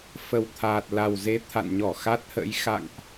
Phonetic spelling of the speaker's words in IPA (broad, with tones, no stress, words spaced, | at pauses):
fə˨˩wt̪ʰaː˨˩t̚ la˨˩wze˨˦t̪ʰa̰˧˨nɲɔ˧˩ xa˦˥t̚hə̰˧˥j xa̰˧˨ŋʔ